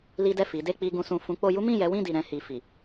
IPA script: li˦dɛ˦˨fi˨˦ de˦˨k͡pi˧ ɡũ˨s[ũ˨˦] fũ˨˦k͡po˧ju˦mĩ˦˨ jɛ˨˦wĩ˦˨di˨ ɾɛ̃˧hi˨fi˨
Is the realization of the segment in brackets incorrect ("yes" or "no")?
yes